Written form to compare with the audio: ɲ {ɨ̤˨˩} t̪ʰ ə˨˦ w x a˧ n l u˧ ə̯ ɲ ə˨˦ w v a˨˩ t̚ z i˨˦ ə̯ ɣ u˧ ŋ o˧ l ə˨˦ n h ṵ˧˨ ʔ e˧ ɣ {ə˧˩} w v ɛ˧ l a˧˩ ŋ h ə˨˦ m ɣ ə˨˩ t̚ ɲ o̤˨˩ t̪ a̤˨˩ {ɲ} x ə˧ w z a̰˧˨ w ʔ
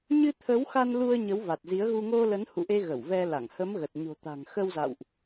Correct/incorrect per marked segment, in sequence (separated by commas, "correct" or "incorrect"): incorrect, correct, incorrect